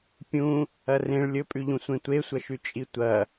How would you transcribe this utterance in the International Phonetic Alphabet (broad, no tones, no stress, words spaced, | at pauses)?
pʲũ | ɐrẽɭ lʲɵpʼʉʎũ sʷẽtʷesʷɐʃʉ t͡ʃʼitʷɐ